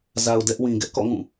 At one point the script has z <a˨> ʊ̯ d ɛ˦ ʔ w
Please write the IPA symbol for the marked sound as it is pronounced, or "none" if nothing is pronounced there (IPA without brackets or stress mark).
a˨